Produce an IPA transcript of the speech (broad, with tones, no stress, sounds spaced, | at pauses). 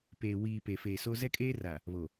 p eː˨ w iː˨ p e˨ f e˨ s o˦ z ɛ˦ kʼ eː˦ r a˨ | β o˨